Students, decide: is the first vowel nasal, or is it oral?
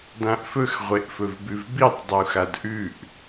nasal